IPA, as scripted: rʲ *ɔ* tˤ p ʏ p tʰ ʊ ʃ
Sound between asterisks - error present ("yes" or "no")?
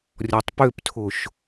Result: no